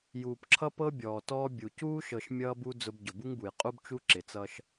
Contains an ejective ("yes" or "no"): yes